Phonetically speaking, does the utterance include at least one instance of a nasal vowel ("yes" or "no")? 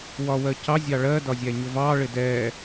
no